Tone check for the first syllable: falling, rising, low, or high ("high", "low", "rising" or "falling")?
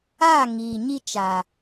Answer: falling